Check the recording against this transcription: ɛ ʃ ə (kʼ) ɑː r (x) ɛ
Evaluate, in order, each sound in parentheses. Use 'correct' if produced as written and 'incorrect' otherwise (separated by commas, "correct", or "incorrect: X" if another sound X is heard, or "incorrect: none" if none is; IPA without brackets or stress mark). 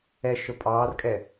incorrect: pʼ, incorrect: kʼ